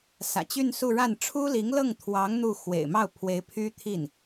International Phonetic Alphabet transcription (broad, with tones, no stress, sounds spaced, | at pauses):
s ä̰˨˩ t͡ɕ y˥˧ n s u˥˧ ɻ a˥˩ n ʈ͡ʂʰ u˥ l i˧˥ ŋ l ɤ˥˩ ŋ t̪ʰ w ɑ˧˥ ŋ n̪ u˥˩ x w ḛ˨˩ ɪ̯ m ɑ˥˩ ʊ̯ pʰ w e˧˥ ɪ̯ pʰ y˥ t̪ʰ i˥˩ n